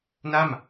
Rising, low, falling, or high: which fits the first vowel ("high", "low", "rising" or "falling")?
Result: falling